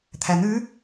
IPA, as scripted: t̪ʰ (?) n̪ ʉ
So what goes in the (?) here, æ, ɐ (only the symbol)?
æ